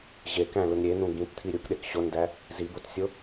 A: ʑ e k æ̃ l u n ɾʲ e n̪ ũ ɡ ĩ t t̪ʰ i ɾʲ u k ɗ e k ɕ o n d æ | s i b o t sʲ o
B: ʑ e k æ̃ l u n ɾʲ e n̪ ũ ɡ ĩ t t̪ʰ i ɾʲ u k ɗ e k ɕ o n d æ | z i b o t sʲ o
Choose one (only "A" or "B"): B